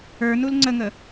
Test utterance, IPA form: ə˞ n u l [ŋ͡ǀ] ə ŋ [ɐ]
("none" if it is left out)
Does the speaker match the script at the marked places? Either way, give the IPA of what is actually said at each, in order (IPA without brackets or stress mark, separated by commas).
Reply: ŋ͡ǀ, ə